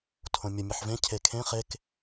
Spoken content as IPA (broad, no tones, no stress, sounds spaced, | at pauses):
tʰ õ mʲ ə mʲ ʌ ħ v ẽ cʰ e kʰ ẽ χ e k